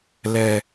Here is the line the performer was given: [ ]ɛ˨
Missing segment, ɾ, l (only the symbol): l